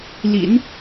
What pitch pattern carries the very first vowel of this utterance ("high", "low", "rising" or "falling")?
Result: low